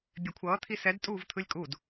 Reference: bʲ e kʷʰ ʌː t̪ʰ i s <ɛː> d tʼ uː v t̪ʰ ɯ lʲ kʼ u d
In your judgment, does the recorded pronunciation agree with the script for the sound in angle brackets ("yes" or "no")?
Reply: no